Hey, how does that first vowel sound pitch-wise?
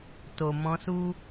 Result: low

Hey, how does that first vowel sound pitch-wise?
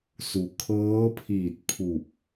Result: low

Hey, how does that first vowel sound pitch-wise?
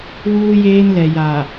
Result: high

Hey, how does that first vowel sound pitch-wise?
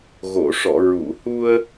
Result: low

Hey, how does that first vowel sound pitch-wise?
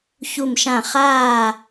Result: falling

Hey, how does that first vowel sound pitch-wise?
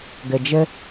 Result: low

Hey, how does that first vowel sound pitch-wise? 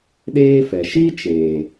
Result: high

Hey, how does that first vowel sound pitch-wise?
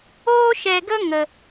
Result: high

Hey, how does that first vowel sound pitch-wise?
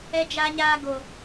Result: high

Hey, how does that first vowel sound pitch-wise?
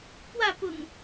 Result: falling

